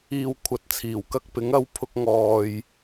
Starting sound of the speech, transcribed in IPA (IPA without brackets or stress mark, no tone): iː